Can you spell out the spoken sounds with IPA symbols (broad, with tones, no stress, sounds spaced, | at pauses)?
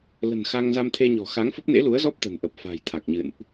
l ə̤˨˩ n x a˧ ŋ z a˧ m t̪ʰ e˧ ɲ ɔ̤˨˩ x a˨˦ ŋ f ə˦˥ p̚ n ḛ˧˥ l u˨˦ ə̯ z ɔ˦˥ p̚ t̪ ə̤˨˩ n ʔ ə˨˩ p̚ f a̤˨˩ j t̪ʰ a˨˩ k̚ ɲ ɨ̰˧˨ n ʔ